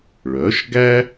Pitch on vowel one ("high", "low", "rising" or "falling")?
rising